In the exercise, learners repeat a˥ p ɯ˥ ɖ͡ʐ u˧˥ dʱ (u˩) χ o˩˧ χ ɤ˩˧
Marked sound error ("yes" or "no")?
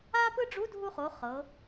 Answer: yes